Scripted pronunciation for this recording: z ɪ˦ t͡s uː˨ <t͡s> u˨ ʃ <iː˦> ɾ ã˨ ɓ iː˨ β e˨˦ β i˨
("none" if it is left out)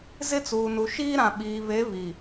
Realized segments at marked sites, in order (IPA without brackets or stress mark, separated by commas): n, iː˦